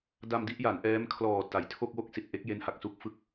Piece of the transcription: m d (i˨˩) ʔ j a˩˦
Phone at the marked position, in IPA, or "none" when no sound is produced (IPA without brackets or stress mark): i˥˩